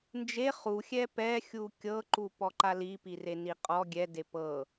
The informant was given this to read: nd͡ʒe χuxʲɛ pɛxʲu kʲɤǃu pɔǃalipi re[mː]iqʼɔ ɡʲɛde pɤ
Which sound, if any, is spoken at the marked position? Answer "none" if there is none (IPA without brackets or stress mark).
n